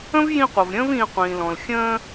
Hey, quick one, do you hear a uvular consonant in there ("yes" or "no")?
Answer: yes